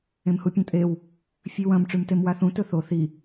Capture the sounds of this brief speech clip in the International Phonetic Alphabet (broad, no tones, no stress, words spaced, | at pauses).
ẽmhupʲõtʼew | fʲʉwɐ̃m ʈ͡ʂʉmtemwaθũ tɵθo θi